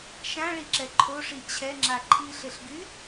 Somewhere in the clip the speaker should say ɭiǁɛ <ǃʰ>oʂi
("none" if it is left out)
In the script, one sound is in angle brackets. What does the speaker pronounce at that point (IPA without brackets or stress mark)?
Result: ǃʰ